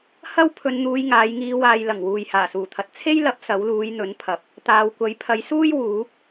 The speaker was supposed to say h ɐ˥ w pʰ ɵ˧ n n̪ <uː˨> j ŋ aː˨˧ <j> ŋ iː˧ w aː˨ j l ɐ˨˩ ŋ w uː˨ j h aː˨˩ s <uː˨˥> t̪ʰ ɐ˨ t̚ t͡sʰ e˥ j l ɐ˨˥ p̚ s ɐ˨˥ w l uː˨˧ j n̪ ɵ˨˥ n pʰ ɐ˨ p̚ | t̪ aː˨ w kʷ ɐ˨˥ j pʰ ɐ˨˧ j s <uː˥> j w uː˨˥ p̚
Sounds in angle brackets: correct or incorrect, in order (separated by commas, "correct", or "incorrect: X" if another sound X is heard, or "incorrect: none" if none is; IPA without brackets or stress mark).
incorrect: uː˧, correct, incorrect: uː˨˩, correct